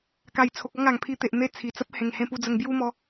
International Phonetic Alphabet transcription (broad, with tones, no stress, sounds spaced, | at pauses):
k a˨˩ j t͡sʰ o˨ k̚ ɔ˥˧ ŋ a˨˩ ŋ pʰ i˧ t̪ e˨ ʔ n̪ e˧ t͡sʰ i˨˩ t͡s ə˦ p̚ h ẽ˨˩ ŋ h ẽ˧ p u˧ d͡z ə˧ ŋ b j u˦ m ɔ˧